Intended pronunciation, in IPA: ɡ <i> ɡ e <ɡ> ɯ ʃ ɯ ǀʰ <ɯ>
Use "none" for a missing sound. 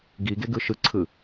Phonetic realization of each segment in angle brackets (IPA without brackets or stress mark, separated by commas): i, ɡ, ɯ